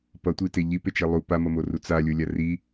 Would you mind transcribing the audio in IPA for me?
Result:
p ʌ tʷ i t e ʎ i p e t͡ʃ e lˠ u p a m ʌ m o r u t͡s a lʲ o lʲ a r i

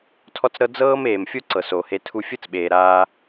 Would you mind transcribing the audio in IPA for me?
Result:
tʰ ɔ˦ t͡s ɾ ɤ˦ d͡z ɤː˦ m eː˨ m fʲ o˦ ǀ ɤ˨ s o˨ h e˧ tʰ u˧ fʲ ɯ˦ t͡s ɓ eː˨ ɾ aː˧

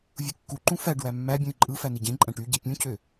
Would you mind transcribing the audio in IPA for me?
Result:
vʲ u kː u ǃ ũ f æ ɖ w æ mː æ bʲ ũ i̯ ǃʼ ɯ f æ n i ɟ ẽ ǃʼ æ̃ ʈ y ɟ i pʲ ũ cʰ ø

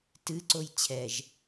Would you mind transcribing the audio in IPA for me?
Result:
t ɨ ǀ o j t͡ɕʰ ɛ ʒ

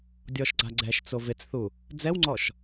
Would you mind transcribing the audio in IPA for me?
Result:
dʲ ɔ ʃ ɡ͡ǀ a ɡ͡ǀ ɛ ʃ t͡s o v ɪ t͡s θ u | d͡z ɛ w ŋ͡ǀ ɔ ʃ

